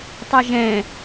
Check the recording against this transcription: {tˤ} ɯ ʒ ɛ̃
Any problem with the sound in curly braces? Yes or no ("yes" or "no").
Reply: no